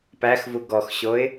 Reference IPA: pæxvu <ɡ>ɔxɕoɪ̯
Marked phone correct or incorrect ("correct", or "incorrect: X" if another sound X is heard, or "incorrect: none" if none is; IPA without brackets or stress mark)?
correct